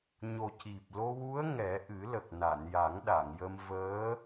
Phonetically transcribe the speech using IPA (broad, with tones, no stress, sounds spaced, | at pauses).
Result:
ɲ o˨˩ c i˨˩ p̚ l o˧ w u˧˥ ə̯ ŋ ɛ˨˩˦ ʔ ɨ˨˩˦ l ə˨˩ k̚ n a˨˩˨ n j a˨˩˦ ŋ ɗ a˨˩˨ ŋ j ə˧ m v əː˧˥